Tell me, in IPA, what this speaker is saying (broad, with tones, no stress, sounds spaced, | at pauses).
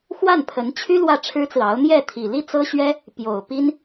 x w a˥˩ n pʰ ə˧˥ n t͡ɕʰ y˥ l w ä˥˩ ʈ͡ʂʰ ɻ̩˥ t͡s ɹ̩˨ ɑ˧˥ ʊ̯ n̪ j ɛ˥˩ t̪ʰ i˨˩ l i˥ t͡s ɤ˥ ɕ ɥ ɛ˥ | p j o˨˩ ʊ̯ p i˥ n